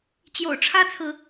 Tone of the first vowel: low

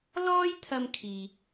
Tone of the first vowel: high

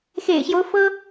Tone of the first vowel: low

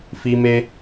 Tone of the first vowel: high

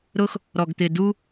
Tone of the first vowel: high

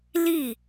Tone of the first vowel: falling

